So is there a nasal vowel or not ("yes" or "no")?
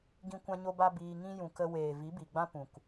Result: yes